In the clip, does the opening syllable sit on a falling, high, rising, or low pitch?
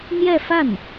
falling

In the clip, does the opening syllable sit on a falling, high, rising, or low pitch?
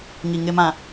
low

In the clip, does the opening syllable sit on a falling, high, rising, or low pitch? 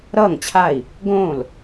falling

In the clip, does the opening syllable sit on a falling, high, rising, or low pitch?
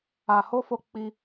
low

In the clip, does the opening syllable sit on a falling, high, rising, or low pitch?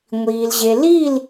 low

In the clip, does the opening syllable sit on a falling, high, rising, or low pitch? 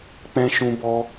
high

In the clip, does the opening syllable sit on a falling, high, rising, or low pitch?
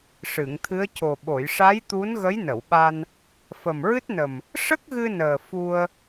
low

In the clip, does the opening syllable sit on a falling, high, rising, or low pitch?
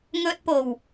high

